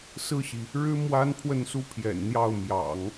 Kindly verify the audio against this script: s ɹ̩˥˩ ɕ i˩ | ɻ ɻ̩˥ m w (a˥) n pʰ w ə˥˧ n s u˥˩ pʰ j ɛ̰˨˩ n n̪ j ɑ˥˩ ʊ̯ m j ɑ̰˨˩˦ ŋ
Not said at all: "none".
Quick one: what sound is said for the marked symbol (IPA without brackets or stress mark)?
a˥